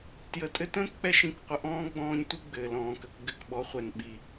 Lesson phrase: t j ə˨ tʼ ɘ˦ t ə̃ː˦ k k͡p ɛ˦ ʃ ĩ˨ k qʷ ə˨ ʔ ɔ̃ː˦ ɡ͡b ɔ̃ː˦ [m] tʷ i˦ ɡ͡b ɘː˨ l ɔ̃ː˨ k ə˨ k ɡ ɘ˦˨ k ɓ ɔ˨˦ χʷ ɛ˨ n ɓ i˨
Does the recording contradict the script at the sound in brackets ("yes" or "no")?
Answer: yes